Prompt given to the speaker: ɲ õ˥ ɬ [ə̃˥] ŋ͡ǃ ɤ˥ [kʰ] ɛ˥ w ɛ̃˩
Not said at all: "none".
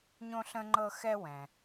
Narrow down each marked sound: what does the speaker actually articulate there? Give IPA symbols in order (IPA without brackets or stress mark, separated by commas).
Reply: ə̃˥, x